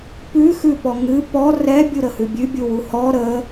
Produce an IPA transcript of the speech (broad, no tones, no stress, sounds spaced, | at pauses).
p ʉ x ʉ p ɔ ŋ ɨ p ɔ r ɛ bʲ u ɾ ə h ʉ bʲ ʉ bʲ u w u h ɔ ɾ ə